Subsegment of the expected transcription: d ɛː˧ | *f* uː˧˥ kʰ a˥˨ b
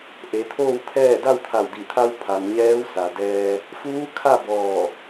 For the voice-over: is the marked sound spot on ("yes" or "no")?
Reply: yes